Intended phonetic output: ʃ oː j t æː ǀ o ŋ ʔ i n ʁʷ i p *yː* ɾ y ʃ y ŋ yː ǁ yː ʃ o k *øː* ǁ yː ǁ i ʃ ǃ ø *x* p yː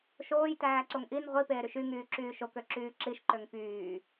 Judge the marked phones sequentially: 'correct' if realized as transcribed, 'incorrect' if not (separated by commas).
incorrect, incorrect, incorrect